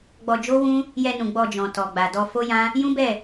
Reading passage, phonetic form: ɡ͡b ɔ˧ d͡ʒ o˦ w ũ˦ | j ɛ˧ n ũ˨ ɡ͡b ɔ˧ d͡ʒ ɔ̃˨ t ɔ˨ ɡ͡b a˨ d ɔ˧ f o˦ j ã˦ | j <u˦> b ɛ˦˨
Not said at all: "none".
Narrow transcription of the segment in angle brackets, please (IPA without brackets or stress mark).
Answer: ũ˦